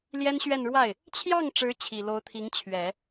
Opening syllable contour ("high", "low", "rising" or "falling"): high